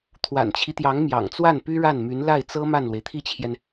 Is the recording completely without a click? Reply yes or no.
yes